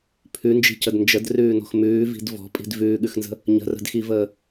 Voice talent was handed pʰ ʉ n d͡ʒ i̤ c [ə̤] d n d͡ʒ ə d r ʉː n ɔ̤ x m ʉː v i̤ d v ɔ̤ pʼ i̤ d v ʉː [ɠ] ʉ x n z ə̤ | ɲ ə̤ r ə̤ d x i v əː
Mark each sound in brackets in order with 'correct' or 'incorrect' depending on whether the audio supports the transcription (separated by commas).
incorrect, correct